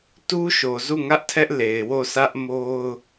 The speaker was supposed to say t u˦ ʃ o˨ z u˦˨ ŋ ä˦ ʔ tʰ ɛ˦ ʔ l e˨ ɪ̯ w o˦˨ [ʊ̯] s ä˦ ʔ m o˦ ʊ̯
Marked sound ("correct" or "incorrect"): incorrect